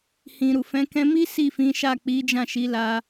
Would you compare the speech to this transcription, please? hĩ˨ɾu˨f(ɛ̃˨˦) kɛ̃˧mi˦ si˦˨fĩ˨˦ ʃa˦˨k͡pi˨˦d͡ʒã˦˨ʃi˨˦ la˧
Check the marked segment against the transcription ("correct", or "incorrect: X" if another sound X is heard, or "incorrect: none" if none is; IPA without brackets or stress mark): correct